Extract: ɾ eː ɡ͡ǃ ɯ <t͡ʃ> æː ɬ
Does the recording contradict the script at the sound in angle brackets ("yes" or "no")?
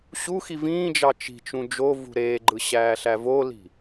yes